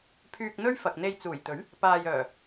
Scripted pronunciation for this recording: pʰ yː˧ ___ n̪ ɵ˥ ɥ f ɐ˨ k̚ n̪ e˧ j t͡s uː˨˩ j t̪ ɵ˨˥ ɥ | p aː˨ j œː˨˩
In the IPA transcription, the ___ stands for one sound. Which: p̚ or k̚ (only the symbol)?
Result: k̚